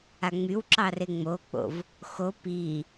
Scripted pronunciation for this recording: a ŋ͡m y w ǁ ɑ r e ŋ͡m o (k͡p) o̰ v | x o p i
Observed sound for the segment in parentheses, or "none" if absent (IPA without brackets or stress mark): k͡p